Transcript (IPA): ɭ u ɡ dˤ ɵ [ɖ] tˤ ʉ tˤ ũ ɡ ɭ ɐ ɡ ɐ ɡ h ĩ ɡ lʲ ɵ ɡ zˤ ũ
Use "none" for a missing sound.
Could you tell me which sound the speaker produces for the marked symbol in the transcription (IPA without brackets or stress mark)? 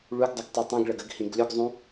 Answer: ɡ